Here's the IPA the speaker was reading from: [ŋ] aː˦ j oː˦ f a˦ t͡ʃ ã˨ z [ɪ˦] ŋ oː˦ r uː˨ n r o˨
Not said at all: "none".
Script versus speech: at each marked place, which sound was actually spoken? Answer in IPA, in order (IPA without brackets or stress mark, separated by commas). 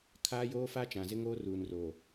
kʰ, ɪ˦